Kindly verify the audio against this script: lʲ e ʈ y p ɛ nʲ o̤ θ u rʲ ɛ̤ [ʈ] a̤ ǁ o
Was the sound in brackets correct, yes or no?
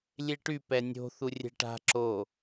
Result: yes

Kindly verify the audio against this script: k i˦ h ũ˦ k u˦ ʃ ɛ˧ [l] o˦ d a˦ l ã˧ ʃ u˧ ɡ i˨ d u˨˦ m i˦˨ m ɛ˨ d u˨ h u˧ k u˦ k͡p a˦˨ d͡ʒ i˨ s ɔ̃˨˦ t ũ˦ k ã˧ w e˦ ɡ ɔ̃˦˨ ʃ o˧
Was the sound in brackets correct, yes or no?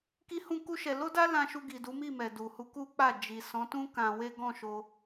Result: yes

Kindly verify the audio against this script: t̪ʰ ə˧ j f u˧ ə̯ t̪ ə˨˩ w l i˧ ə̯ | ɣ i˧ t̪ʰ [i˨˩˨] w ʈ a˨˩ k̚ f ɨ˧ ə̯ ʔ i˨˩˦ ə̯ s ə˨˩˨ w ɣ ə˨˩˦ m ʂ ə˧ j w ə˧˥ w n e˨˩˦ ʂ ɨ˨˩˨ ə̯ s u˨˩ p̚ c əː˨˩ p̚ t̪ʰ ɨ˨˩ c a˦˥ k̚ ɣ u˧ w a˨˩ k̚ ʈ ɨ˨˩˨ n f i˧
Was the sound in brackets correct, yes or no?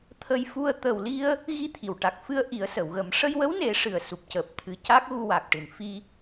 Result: yes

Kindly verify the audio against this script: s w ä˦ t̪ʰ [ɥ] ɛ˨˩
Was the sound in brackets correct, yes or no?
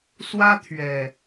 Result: yes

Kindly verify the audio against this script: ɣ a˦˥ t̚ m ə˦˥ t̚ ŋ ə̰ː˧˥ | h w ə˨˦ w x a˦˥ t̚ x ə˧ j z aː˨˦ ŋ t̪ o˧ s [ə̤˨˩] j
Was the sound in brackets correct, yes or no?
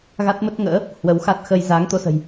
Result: yes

